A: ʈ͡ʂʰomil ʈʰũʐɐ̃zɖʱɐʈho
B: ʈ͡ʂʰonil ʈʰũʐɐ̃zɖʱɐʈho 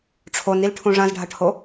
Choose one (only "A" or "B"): B